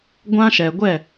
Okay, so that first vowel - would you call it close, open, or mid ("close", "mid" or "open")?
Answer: open